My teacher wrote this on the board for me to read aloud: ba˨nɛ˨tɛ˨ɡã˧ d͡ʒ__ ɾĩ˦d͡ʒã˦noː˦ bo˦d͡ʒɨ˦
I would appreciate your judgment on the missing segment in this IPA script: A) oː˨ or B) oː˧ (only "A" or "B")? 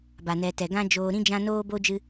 B